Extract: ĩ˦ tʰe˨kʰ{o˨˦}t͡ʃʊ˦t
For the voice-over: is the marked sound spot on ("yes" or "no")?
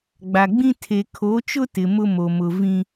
yes